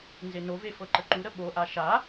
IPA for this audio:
n z e n o v e f ɤ ǃ ə ǃ u ɾ ə ɓ o ʔ a ʃ a

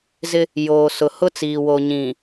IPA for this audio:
z ɪ˦ | j oː˨ s ʊ˨ h ʊ˦ t͡s iː˨ w o˨ ɲ ĩ˨

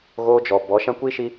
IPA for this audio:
ɣ oː˦ d͡ʒ ɔ˨ b ɔ˨˦ ʃ ã˦ kʷ i˦ ʃ i˦

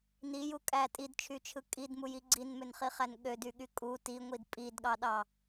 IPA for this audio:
n i j u kʼ æ tʼ i d t͡ʃʰ y t͡ʃʰ ɯ kʼ i d m u j i ɡ͡ǀ i n m ø n χ i χ æ n ɠ ø d y ɠ y kʼ u t i ŋʷ i d pʼ i d ɠ ɑ ɗ ɑ

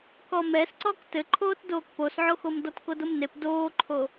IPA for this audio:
k ɔ m ɛ s ǀ ɔ k t ɘ ǃʰ oː t d oː k p o s ʕ o x o m d ɔ t k o d o m n e p d oː ǃʰ o

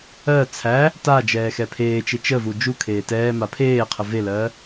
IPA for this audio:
ɜ t͡sʰ æ | t a d͡ʒ ɛː x ɛ pʰ eː t͡ʃ e t͡ʃ ə v u d͡ʒ u kʰ eː t ɛː m a pʰ eː qʰ ə v e l ɜː

